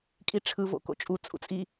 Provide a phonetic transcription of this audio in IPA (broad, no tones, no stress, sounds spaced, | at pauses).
kʼ i ʈ͡ʂʰ ɯ v o̰ k o̰ t͡ʃʼ u t͡sʼ ṵ t͡sʼ i